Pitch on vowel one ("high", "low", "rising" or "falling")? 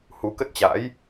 rising